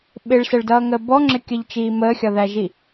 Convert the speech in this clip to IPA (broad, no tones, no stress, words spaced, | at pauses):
ɓɪɭsəɭdʌːŋəː bɔŋ͡ǁɪkʲəʎt͡ʃiː məːxʲɒðæʒi